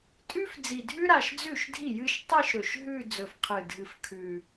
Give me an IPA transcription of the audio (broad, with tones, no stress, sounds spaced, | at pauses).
tʼ ʉ˥ f d͡z i˨˩ dʱ ʉ˥ ɾ a˨˩ ʃ d͡z ʉ˥˩ ʃ dʱ i˥˩ j ɨ˥˧ ʃ tˤ i˥˧ ʃ ɾ ɵ˨˩ ʃ ɦ ʉ˥˧ d͡z ɵ˨˩ f qʰ ɨ˨˩ dʱ ɨ˨˩ f kʰ ʉ˨˩